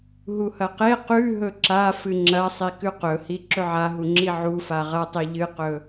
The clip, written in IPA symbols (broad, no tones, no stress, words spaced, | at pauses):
ɦuhɐqe qʉ ɦɵǁa fɨŋ͡ǁɐsˤi kʉqɵhi ǁɵʕaɦuŋ͡ǁi ʕufa ʁɐtˤi ʎɨqɵ